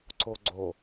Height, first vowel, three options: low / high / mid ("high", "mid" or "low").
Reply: mid